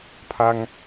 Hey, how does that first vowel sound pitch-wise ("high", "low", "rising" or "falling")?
high